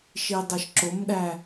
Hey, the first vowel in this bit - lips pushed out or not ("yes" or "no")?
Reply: no